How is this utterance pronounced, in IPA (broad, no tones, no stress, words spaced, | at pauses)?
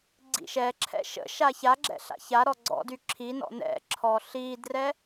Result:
ɡ͡ǀḭʃɛǁʰɛ̰ ʃə̰ ʃaçaɡ͡ǁɛ̰ ɬa̰çaɾɔ ɡ͡ǀɔ̰ dyǁʰinɔ̰ nɛ̰ ǁʰɔɬidrɛ